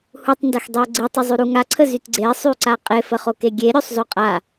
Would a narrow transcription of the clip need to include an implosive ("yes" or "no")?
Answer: no